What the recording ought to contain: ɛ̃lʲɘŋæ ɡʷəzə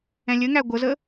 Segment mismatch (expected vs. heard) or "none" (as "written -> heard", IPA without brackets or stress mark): none